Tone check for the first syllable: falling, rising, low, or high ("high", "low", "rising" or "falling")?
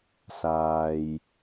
low